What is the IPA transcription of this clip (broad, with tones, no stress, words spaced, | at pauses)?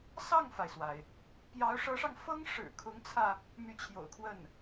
sɑ˥˩ŋfa˩ɪ̯swa˩ɪ̯ | pjɑ˧˥ʊ̯ʂɤ˧˥ʂɑ˧ŋfɤ˥ŋ ʂɻ̩˨˩kʰʊ˧˥ŋt͡sʰä˧ | my˧˥t͡ɕʰjo̰˨˩ʊ̯kʰwə˥˩n